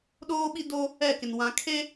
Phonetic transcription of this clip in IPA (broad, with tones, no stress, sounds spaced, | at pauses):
ɗ oː˦ ɓ i˦ d o˦ | ɛ˦˨ k ɪ˨ n w ã˨ kʰ e˦